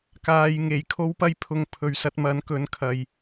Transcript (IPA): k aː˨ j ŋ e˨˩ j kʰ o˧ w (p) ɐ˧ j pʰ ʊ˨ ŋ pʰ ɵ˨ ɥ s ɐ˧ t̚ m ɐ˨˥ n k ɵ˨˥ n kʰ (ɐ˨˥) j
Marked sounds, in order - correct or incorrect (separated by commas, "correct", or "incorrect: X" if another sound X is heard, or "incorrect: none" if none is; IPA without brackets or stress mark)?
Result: correct, incorrect: ɐ˨